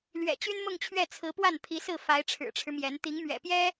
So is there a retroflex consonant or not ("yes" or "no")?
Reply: yes